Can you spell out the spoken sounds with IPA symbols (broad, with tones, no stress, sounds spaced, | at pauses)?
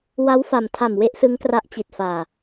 w a˦˥ w f a˨˩ m tʰ a˨˩ m w e˦˥ ʔ s ɯ˦˥ ŋ k r a˦˥ ʔ t͡ɕ i˨˩ t̚ f aː˨˩